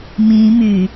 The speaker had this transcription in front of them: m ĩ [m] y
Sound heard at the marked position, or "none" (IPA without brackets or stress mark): m